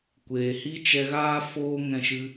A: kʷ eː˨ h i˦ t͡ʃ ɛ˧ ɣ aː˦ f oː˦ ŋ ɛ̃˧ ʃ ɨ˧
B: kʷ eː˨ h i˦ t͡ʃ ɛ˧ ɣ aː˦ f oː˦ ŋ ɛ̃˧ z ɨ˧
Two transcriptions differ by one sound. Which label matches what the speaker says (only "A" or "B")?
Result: A